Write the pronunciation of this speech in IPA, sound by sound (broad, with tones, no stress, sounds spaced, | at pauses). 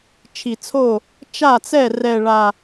t͡ʃʰ i˨˩ t͡sʰ o˥˩ | t͡ʃ a˥˩ t͡s ɛ˥˩ r ɛ˨˩ ɭ a˨˩